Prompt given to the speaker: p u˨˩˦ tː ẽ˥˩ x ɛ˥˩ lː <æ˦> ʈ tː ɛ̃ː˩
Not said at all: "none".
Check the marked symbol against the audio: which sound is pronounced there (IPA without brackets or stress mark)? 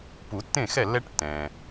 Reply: ɛ˦